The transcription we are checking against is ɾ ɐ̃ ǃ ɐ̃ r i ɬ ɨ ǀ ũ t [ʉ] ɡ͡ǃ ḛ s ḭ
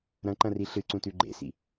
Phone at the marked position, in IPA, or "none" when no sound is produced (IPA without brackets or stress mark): ʉ